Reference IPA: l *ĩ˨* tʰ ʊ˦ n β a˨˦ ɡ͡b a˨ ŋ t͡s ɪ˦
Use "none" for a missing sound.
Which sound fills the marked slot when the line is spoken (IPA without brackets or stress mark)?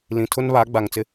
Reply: ĩ˨